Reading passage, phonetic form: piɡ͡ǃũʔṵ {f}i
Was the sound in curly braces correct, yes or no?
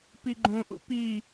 no